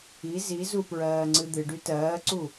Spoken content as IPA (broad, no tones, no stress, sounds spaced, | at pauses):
i z i z u p ɹ ɜː ŋ͡ǀ ɨ d̪ ɨ ɖ y t ɜː ǀ u